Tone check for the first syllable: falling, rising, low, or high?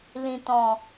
low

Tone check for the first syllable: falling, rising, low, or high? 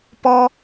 low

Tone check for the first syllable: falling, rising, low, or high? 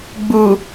low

